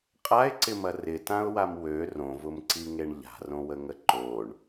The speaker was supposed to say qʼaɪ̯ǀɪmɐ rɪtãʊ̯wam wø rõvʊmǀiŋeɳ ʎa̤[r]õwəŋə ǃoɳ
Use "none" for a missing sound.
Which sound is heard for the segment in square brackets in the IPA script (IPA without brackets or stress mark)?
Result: r